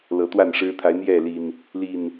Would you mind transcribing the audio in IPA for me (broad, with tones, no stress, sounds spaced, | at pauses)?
l ɤ˨˦ t̪ w a˥˨ n ʂ ɻ̩˦ t̪ʰ a˨˦ ɪ̯ n̪ j ɛ˥˨ l i˨˩ n | l i˨˩ n